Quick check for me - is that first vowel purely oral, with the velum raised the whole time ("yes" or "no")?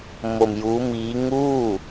yes